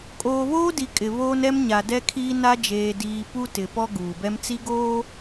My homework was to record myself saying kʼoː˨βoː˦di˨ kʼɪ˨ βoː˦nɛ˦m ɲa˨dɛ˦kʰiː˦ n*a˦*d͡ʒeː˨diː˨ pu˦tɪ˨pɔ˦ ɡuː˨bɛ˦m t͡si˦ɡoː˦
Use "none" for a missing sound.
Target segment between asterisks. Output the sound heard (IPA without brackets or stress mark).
a˦